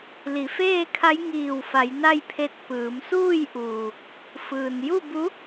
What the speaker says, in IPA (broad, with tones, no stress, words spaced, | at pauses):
li˩˧feː˥˨kʰa˧˥j ŋiː˧˩wfa˩˧j na˥˨jpʰe˧˥t̚ pɯː˩˧msuː˥˨jʔuː˩ | fɯː˩n ju˥˨bu˧˥